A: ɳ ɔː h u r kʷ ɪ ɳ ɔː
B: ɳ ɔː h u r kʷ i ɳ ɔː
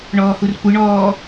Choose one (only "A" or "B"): A